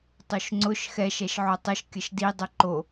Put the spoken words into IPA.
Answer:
tˤ o ʃ ŋ͡ǀ ʊ ʃ x ɛ ʃ ɛ ʃ ʕ o tˤ ə ʃ kʲ ə ʃ d i dˤ ɵ ǃ o

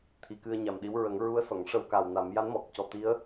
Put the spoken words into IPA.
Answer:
t̪ʰ i˨˩˦ k ɨ˧ ə̯ ɲ a˨˩ m ɗ i˧˥ w ɹ ə˨˩˦ ŋ ɹ u˧˥ ə̯ s ɔ˨˩˨ ŋ ʂ ə˧ w k a˨˩ w n a˨˩˦ m j a˧˥ n m ɔ˨˩ k̚ c ɔ˨˩ t̪ i˧˥ ə̯

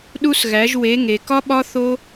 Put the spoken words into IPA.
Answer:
ɗ u˥ s ɣ æ˧˥ ʒ w e˧˥ ŋ e˧ k ɒ˥ ɓ ɒ˥ θ o˥

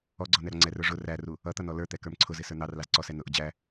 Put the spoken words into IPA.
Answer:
ɔ ɡ͡ǀ ɔ n ɛ ɾ ɔ ŋ͡ǀ ɛ r ə˞ ʐ ʊ r æ r u | ʌ t̪ ʌ n ɔ l ə˞ t̪ ɛ k ə˞ m ǀʰ ʊ z ɪ s ə˞ n̪ ɑ r l ɑ z ǀ ɔ s ɛ n ʊ ʔ ʊ d͡ʑ æ

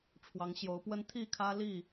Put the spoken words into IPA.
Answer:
ʈ͡ʂʰ w ɑ˨˦ ŋ ɕ j o˨˦ ʊ̯ p w ə˦ n t̪ʰ i˥˨ kʰ ä˦ l i˥˨

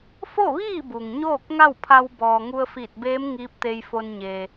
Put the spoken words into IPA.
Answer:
f o˥˨ ʋ iː˥˨ b u˩ ŋ ɲ oː˥˨ k̚ ŋ a˥˨ w pʰ a˧ w b ɔː˩ ŋ u˧ ə̯ f iː˧˩ t̚ b eː˧˥ m ŋ iː˧˥ p̚ t̪ e˧ j f o˧ n ɲ eː˩

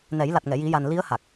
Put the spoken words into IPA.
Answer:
n ɛ˨˩˦ j l a˨˩ t̚ ŋ ɛ˨˩˨ j i˨˩˦ j a˨˩ n l i˧˥ ə̯ h a˨˩ k̚

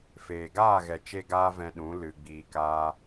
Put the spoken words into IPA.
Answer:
f eː˨ ɡ aː˦˨ ɣ ɛ˨ t͡ʃ e˦ ɡ aː˦ v ɛ̃˧ ɗ ũ˨˦ l ɨ˨ ɡ͡b iː˨ k aː˧

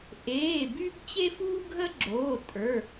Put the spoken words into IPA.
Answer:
ʔ eː˩˧˩ b y˦ b t͡ɕ e˦ f uː˦ ɡʱ ə˦ ɡ͡ǁ oː˩˧˩ tʼ ə˞˩˧˩

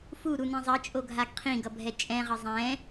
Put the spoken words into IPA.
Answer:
f u ɾ u n ĩ zˤ ʌ t͡ʃʼ o ɡʱ a ɡ qʰ ĩ ɡ ʌ bʱ ɛ t͡ʃʼ ɛ̃ ʁ ʌ zˤ ɛ̃

